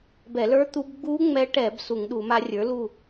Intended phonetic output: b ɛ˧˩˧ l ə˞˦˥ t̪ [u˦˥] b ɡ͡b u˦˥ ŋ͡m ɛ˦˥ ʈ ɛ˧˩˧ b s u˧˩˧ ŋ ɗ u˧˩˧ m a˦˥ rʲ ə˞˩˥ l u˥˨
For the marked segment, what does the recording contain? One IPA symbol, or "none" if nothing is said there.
u˦˥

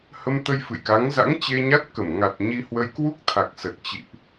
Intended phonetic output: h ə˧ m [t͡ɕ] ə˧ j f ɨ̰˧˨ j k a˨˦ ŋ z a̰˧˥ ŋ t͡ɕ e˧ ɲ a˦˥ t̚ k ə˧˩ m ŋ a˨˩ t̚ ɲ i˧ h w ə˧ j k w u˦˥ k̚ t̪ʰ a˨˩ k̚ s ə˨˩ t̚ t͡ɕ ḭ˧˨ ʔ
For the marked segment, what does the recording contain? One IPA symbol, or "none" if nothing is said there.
t̪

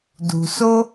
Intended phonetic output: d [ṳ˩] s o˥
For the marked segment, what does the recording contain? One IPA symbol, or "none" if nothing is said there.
ṳ˩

